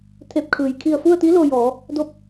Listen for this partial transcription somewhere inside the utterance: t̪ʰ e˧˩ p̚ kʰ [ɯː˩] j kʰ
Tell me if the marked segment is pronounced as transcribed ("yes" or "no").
yes